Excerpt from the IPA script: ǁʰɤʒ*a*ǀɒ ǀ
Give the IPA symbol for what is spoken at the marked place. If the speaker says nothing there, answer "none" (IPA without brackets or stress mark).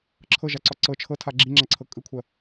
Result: a